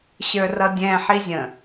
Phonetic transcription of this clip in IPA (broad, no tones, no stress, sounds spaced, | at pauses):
ɕ ə˞ r ʌ dʲ ɛ̃ ħ i zʲ ə̃